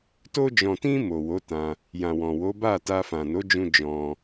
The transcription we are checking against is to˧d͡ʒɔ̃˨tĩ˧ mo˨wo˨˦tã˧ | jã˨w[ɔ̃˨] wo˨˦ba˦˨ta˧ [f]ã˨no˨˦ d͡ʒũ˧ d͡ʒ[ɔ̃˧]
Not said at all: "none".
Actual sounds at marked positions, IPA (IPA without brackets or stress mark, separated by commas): ɔ̃˨, f, ɔ̃˧